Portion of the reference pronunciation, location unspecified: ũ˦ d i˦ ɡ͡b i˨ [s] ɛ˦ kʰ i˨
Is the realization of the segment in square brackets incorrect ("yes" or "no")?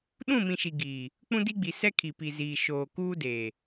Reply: no